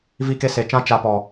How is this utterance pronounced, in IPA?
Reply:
v i˦ k e˦ s e˨˦ t͡ʃ ã˦ t͡ʃ a˧ p ɔ˨

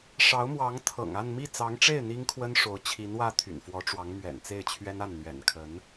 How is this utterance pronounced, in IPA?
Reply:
ʂ ɑ˧˥ ʊ̯ m w ɑ˧˥ ŋ t̪ʰ ɤ̰˨˩ ŋ a˥˧ n m i˥˩ t͡s ɑ˧˥ ŋ ʈ͡ʂ e˥˩ ɪ̯ n̪ i˥ ŋ kʰ w ə˥ n ʂ o˧˥ ʊ̯ t͡ɕʰ i˧˥ n w ä˥˩ t̪ʰ y̰˨˩ n f w ɔ˧˥ ʈ͡ʂ w ɑ˧˥ ŋ m ɥ ɛ̰˨˩ n t͡s e˥˩ ɪ̯ t͡ɕʰ ɥ ɛ˥ n a˥˩ n n̪ ɥ ɛ̰˨˩ n kʰ ə˧˥ n

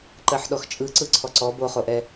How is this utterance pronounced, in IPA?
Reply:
ǃ ɜ ħ ɗ ɔ x t͡ʃʼ ɯ ǀ ɯ ǀʰ ɔ ǀ ɔ b o χ o ʔ ɛ

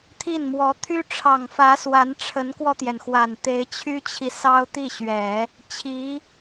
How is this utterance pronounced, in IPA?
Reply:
t̪ʰ i˥˩ n m w ɔ˧˥ t̪ʰ y˥ ʈ͡ʂʰ ɑ˨˩ ŋ f ä˧˥ s w a˧˥ n ʈ͡ʂʰ ə˧˥ n k w ɔ˧ t̪ j ɛ˩ n x w a˨˩ n t̪ e˧˥ ɪ̯ t͡ɕʰ y˥ t͡ɕʰ i˨ s ɑ˥ ʊ̯ t̪ i˥˩ ɕ ɥ ɛ˨˩˦ | t͡ɕʰ i˧˥

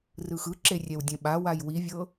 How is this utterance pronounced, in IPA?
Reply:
r ɯ x ɯ ǁ e rʲ ɛ w dʲ ɛ̃ ɓ a w a j w i vʲ ɤ

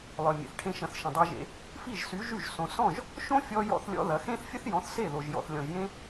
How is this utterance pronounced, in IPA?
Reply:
lˠ œ˨ mʲ ḛ˨ θ ʈʰ ẽ˦ ʃ ɐ̃˧ θ ʃ ə̃˨ dˤ e˧ ʒ ḛ˧ | f i˦˨ ʒ s y˨˦ ʒ y˦˨ ʒ s õ˧ s ɔ̃˦˨ ʒ | ʃ õ˦ fʲ ɔ˧ j ɔ̰˦ θ lʲ ɔ̰˦ ð ɐ˨˦ x ẽ˦ θ fʲ ə˦ θ j ɔ̃˨˦ θ s e˦˨ ð o˨ ʒ j ɔ̰˨ θ lʲ ɔ̃˨ ʒ j ẽ˦

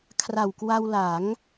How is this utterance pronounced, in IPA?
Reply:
kʰ r a˨˩ w k w a˧ w l a˩˦ ŋ

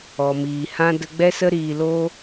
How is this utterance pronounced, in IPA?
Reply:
ɔ˨ m iː˨ h ã˦ d ə˧ ɡ͡b ɛ˦ s ə˦ ɾ iː˧ l oː˦

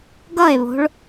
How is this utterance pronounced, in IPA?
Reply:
ɡ ʌ e̯ β o̤ ɭ

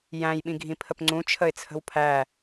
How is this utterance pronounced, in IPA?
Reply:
j æ̃ j ɓ ĩ ɡʱ ĩ pʰ ə p ŋ͡ǀ ũ t͡ʃʰ ə ɪ̯ t͡sʰ ə̤ w pʰ æ

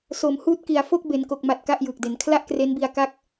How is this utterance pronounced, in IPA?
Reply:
s o˩˦ m h uː˦˥ t̚ k i˨˩ a̯ f o˥˩ k̚ b e˩˦ n k o˨˩ k̚ m a˨˩ t̚ k a˥˩ ʔ j ɯː˨˩ k̚ d e˩˦ n kʰ l a˥˩ ʔ k r e˦˥ n b i˧ a̯ k a˥˩ k̚

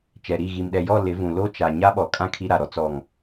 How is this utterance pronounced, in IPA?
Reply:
t͡ʃ ɛ˨ ɾ i˦˨ ɣ i˨ m ɗ ɛ˨ j ɔ˦˨ l ɪ˨˦ v ũ˨ l o˦ t͡ʃ a˨ ɲ a˦ ɓ ɔ˨ kʼ ã˦ kʰ i˦ ɾ a˨ ɾ ɔ˦ t͡s ɔ˨ ŋ

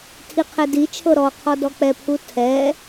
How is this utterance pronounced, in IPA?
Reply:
tʰ i qʰ ɛ d i t͡ʃʰ ɤ ɾ ɔ qʰ ɔ d ɔ k͡p ɛ pʰ u tʰ ɛ

